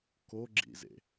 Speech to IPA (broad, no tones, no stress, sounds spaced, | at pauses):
k o ɡ͡ǁ ḭ z ḛ